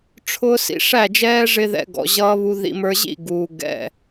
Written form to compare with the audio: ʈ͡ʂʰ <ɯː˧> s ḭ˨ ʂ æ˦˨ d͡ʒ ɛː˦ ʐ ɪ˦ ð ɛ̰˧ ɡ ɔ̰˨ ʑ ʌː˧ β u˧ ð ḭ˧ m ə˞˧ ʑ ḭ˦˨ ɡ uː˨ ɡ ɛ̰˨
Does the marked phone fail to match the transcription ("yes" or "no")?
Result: yes